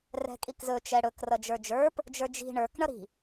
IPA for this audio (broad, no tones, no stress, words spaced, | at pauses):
rɛ̤kʼikzɵ t͡ʃɛɽɵk rʌd͡ʒə˞d͡ʒə˞p | d͡ʒə˞d͡ʒi̤ ɳə˞k ɳʌɾi̤